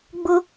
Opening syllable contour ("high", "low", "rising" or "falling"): high